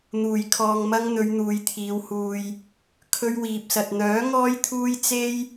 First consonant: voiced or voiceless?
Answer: voiced